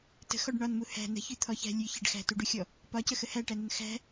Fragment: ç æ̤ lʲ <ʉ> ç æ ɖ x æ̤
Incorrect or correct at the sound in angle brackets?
correct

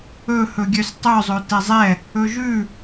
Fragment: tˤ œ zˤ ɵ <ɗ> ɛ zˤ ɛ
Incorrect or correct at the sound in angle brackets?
incorrect: t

